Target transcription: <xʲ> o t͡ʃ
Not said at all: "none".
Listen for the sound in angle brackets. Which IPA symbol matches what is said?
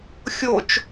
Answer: xʲ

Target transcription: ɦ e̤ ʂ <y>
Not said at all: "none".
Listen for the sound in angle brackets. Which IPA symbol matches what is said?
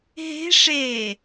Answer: e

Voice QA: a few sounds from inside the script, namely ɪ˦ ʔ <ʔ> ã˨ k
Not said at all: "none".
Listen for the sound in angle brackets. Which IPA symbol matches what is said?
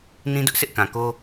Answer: k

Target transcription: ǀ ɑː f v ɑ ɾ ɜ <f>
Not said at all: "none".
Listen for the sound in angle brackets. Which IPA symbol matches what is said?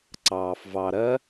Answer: none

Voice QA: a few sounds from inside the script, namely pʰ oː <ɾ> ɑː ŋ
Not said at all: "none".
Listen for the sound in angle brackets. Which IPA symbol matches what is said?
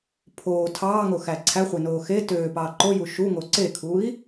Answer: tʰ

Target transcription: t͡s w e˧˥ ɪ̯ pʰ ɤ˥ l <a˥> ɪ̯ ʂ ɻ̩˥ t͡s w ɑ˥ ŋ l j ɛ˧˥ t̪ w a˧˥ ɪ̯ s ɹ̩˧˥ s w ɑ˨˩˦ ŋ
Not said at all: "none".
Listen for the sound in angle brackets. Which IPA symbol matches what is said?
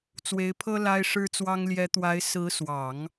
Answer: a˥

